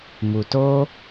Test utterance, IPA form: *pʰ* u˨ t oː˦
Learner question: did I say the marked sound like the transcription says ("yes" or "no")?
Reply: no